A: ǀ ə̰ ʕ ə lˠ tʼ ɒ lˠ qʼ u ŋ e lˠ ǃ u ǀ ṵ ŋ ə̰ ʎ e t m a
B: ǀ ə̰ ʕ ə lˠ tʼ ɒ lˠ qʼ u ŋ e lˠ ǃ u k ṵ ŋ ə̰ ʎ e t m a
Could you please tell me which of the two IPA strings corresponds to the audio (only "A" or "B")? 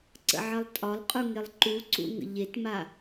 A